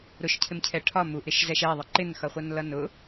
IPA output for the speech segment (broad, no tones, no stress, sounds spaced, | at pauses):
ɾ ʊ ʃ cʰ ɪ m cʰ ɛ ʈʰ ɒ m u ʔ ɾ ɪ ʃ z ɛ ʃ ɛ ðˤ ɪ ǃ ɪ n x ʌ χʷ ʌ n l ʌ n ʊ